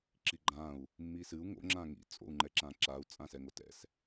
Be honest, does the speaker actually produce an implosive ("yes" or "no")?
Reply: no